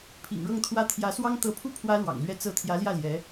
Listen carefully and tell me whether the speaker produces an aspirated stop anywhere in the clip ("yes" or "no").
yes